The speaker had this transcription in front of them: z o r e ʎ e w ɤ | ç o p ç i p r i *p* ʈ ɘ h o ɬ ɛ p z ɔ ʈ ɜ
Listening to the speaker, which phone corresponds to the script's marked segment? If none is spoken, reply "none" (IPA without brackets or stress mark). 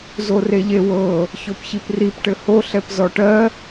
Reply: p